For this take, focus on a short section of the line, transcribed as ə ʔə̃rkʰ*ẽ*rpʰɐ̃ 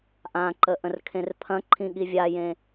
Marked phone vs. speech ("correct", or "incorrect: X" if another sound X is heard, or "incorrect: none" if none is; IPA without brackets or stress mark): correct